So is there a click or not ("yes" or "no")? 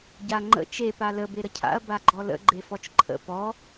yes